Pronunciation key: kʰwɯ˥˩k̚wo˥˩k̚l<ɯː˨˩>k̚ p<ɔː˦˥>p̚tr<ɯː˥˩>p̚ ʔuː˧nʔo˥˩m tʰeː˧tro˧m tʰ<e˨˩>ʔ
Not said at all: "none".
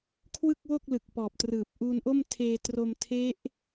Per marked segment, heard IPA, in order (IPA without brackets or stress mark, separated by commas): ɯ˨˩, ɔː˨˩, ɯː˨˩, e˦˥